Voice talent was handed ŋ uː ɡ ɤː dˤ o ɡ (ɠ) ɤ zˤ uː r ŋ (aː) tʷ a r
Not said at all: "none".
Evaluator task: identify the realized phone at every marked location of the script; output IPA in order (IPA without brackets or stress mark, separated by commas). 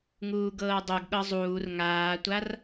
ɠ, aː